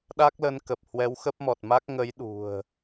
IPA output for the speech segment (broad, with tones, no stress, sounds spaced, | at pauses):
ɗ a˦˥ k̚ l ə˨˦ n k ə˨˩ p̚ h w ɛ˨˦ w x ə˦˥ p̚ m ɔ˨˩ t̚ m a˦˥ k̚ ŋ ə˨˦ j ɗ ṳ˨˩ ə̯